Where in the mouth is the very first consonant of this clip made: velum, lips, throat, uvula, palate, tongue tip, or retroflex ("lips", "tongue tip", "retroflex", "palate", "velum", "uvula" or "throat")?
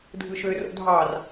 tongue tip